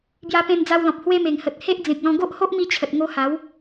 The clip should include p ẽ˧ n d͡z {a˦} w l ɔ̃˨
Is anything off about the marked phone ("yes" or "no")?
yes